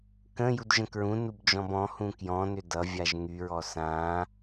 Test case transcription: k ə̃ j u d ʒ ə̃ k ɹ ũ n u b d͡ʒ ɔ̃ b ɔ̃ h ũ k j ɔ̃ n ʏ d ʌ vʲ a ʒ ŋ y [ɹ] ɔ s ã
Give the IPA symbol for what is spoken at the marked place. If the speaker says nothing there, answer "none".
ɹ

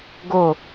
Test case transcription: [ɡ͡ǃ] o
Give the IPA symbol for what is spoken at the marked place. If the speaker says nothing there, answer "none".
ɡ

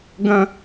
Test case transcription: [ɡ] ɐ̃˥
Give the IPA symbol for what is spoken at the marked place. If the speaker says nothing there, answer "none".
ɡ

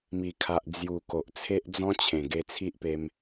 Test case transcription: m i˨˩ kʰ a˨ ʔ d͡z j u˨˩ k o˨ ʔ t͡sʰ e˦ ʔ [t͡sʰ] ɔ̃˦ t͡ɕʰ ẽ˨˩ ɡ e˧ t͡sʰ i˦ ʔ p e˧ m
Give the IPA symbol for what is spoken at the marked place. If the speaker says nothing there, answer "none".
d͡z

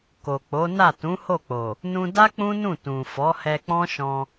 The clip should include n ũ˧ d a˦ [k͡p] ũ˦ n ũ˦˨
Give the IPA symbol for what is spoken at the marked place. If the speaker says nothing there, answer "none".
k͡p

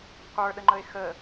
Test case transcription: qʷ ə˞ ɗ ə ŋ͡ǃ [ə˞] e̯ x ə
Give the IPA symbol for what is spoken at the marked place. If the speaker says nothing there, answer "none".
ə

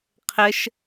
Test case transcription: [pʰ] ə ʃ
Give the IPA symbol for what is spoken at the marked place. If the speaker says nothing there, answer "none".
qʰ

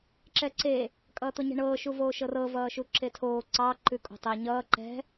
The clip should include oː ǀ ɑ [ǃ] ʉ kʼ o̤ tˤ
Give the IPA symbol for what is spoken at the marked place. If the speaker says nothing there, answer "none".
ǃ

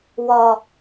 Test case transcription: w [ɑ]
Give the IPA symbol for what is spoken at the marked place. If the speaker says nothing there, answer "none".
ɒ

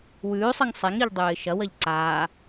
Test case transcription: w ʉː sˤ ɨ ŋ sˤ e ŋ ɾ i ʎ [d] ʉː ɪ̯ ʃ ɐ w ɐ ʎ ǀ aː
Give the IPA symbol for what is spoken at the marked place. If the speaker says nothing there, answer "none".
dˤ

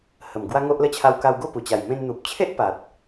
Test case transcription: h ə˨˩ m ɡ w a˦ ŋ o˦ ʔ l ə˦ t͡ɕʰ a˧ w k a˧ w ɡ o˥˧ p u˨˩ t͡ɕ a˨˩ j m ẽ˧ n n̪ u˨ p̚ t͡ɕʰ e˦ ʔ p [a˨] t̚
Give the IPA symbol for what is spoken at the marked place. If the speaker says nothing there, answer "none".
a˨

